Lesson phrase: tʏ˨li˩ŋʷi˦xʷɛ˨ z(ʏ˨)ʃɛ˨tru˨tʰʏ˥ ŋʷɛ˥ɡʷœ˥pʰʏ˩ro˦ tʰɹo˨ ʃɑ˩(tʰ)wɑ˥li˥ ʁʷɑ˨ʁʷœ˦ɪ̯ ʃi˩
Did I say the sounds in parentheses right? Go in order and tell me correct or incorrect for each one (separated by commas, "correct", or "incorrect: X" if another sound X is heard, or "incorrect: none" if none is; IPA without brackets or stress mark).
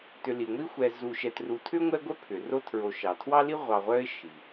incorrect: u˨, correct